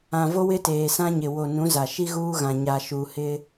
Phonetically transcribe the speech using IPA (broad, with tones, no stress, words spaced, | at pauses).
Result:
ã˨vo˦wɪ˦ teː˨sã˦ɲɪ˨ wo˨ nũ˨˦za˨ ʃi˦ɣuː˦ɣã˨ ɲa˨ʃuː˨ hɪ˦